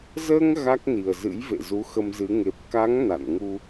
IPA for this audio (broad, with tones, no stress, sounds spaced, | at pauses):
z əː˧ ŋ ɣ a˦˥ k̚ n i˨˩ ə̯ z ɨ̰˧˥ j v ḛ˧˨ z u˨˦ x ə˧ m z ɨ˨˦ ŋ e˨˩ p̚ k a˨˦ ŋ n a̰˧˨ n ŋ u˧